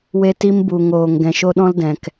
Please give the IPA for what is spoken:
w e˧ t i˧ m b u˨ ŋ oː˨ ŋ ɡ ɛ̃˨ ʃ o˦ ɗ ɔ̃˦ l d ɛ̃˨ k

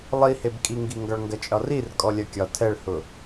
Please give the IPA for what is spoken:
lˠ i h e b kʼ i ŋ ɡ i ŋ ɡ ɒ ɭ ŋ ɡ ɐ t͡ʃʼ ɒ r i r kʼ ɔ lʲ ɐ kʲ ɒ tʰ ɛ ɭ h ʊ

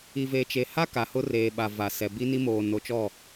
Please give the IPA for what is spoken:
i˨ v e˨ t͡ʃ e˨ h a˦ k a˨ h ʊ˦ r eː˨ ɓ a˨ v a˨ s ɛ˨ b i˦ n i˦ m oː˨ n o˨˦ t͡ʃ ɔ˦˨

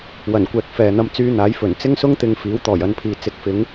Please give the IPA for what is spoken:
w ɐ˨˩ n kʷ ɛː˨ k̚ f ɛː˨ n̪ ɐ˧ m t͡s yː˧ n̪ aː˨˥ j f ɵ˨˩ n t͡s ɪ˥ ŋ s ʊ˥ ŋ t̪ ɪ˨˧ ŋ f iː˨˥ w t̪ ɔː˨˩ j ɐ˨˧ n pʰ iː˨ t͡s ɪ˨˥ k̚ f ɪ˨˥ ŋ

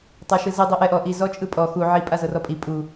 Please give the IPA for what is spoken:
tˤ a ʃ ɯ z i dˤ i ʔ ɛ ʔ ɔ ʔ i z ɔ t͡ʃʼ ɯ pʼ ɔ x u ʕ i pʼ a z ɤ r ɔ pʼ i pʼ u

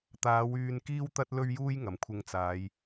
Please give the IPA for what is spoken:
t̪ aː˨˧ w yː˧ n k iː˥ w t̪ ɐ˥ t̚ l ɵ˥ ɥ j uː˥ j ŋ ɐ˨ m kʷʰ ɪ˧ ŋ t͡s aː˨˧ j

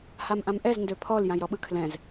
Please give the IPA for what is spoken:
h a m ʔ ã m ʔ ɛ z n d ø pʰ ɔ l j ã j ɾ ɔ ɓ ɯ kʰ l ɛ̃ z

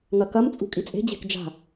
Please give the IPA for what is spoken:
ŋ ɐ k ɐ m t͡sʼ ṳ kʼ i t͡sʼ e̤ d͡ʑ e̤ k d͡ʒ a̤

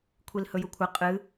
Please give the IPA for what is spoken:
kʷʰ i l h ɵ j u kʷʰ ɐ qʼ ɨ

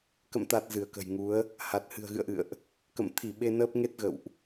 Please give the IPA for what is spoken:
k ə̰˧˨ m t̪ a˨˩ t̚ z ɨ˧˩ ə̯ k ə̤˨˩ j ŋ u˨˦ ə̯ | h a˨˩ t̚ h ɨ̤˨˩ ə̯ ɣ ɨ̰˧˨ ə̯ ʔ ɨ̰˧˨ ə̯ ʔ | k ə̰˧˨ m t̪ʰ i˧˩ ɓ e˧ n əː˦˥ p̚ ŋ e˦˥ t̚ ɣ ə̰˧˨ w ʔ

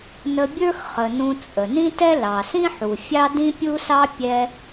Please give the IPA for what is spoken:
n ə˧ bʲ ə˞˥ x χ ə˩ n ũ˧ t͡sʼ ə˩ n ĩ˥ t ɛ˥ l ɑ˩ s ĩ˥ ħ u˩ fʲ ɑ˥ d ĩ˥ pʲ u˥ s ɑ˥ pʲ ɛ˧

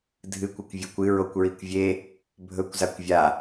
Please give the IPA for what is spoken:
dʱ ɨ kʷ ɵ kʷ vʲ ɵ kʷ ɨ ɹ o kʷ ɹ i kʷ vʲ e | bʱ ɵ kʷ z a kʷ vʲ a

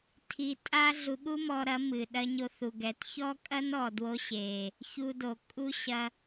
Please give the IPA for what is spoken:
tʰ i˧ tʼ a˦ ɮ u˧ ɠ u˦ m ɔ˧ ɾ ɐ˨˦ m ɨ˨ ɗ ɐ˧ ɲ o˧ θ u˨ ɡ ɛ˨ t ç ɔ˦ kʼ ɐ˦ n ɔ˨ d w o˧ ɕ e˨ | ç u˧ d o˨ kʼ u˦ ɕ ɐ˧

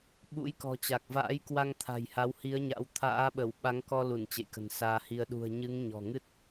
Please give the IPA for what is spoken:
ɓ ṵ˧˥ j k ɔ̤˨˩ t͡ɕ a˨˩ k̚ v a̰ː˧˥ j k w a˧ ŋ t̪ʰ a̤˨˩ j h a˨˦ w h i˨˦ ə̯ ɲ a̰˧˥ w t̪ʰ a̰ː˧˥ ɓ ə˧˩ w ɓ a˨˦ ŋ k ɔ˧ l u˧˩ n t͡ɕ ḛ˧˨ j k ə̤˨˩ n s aː˧ h i˧ ə̯ ɗ ṳ˨˩ ə̯ ɲ ɨ˨˦ ŋ ɲ ɔ̤˨˩ ŋ ɨ˦˥ t̚

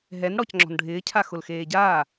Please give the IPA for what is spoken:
ɦ ɛ n ɽ ɔ c ŋ͡ǁ ɔ̤ n ɖʱ ɪː cʰ a x ʊ l x eː ɟ aː

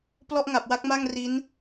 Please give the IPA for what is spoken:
p l ɔ˥˩ ʔ ŋ a˨˩ p̚ w a˥˩ k̚ m a˥˩ ŋ r i˦˥ n

